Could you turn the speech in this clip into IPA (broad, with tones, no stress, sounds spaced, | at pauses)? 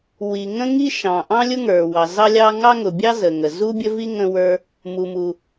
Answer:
w i˩ ŋ ə̃˥ ŋ i˥ ʃ ɑ̃˩ ʔ ɑ̃˥ lʲ ʊ˥ ŋ ə˞˩ w ɑ˩ z ɑ˥ lʲ ɑ˥ ŋ ɑ˥ ŋ ʊ˩ bʲ ɑ˥ z ə˩ ŋ ə˩ z u˥ bʲ ə˥ v i˥ ŋ ə̃˥ w ə˞˥ | m u˩ m u˩